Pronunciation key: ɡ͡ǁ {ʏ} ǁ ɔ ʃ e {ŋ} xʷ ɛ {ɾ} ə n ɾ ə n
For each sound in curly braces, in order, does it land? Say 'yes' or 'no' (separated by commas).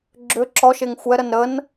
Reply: yes, yes, yes